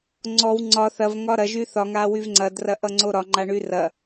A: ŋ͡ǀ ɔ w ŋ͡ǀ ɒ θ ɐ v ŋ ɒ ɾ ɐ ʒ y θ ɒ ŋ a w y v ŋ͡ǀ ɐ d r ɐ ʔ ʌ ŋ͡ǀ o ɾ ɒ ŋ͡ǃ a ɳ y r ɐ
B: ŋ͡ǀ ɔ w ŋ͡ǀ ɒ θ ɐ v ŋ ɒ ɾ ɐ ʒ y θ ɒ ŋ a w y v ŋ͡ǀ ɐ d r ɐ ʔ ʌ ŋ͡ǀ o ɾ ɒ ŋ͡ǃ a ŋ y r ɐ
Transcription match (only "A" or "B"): A